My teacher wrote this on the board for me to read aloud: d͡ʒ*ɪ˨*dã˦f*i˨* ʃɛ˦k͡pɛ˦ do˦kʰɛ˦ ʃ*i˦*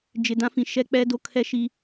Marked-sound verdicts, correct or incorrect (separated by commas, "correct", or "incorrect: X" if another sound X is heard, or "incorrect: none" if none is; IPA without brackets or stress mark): correct, incorrect: ĩ˨, correct